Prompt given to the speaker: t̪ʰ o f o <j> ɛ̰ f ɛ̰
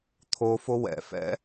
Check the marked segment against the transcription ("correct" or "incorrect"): incorrect